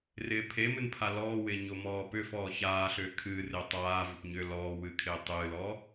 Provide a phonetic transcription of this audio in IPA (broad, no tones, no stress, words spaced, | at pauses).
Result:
rɪːpʰemɨn pʰalɔːwɪː ɲomɔːpʏfɔː çaː ɬʏːkʰɨːrɪː tˤaːvʏp ɲʏ lɔː wɨkʰɪːtˤɨːlɔː